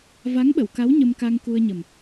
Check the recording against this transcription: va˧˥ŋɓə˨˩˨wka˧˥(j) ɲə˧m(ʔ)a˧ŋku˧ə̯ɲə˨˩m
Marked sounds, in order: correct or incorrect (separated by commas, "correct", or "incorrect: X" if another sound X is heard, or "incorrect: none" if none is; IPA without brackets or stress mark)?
incorrect: w, incorrect: k